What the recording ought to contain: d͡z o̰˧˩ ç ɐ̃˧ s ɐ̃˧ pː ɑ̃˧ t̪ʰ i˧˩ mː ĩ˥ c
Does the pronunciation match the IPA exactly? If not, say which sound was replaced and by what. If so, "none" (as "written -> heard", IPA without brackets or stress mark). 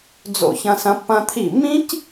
ɑ̃˧ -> ɐ̃˧